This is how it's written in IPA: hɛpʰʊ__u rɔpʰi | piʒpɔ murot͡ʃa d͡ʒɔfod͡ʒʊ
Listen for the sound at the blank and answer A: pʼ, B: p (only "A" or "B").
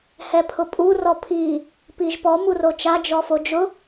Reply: A